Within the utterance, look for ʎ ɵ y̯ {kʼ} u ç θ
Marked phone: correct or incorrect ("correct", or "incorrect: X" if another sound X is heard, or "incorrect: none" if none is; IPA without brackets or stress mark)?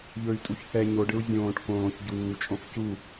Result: incorrect: tʼ